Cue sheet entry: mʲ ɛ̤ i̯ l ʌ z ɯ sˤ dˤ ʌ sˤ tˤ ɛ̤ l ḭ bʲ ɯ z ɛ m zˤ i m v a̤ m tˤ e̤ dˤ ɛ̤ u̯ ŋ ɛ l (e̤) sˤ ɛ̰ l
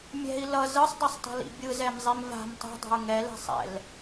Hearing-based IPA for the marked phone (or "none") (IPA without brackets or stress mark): ɛ̤